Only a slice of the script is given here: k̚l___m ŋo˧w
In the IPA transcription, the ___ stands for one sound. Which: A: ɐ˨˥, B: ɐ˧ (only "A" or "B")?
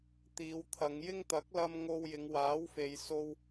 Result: B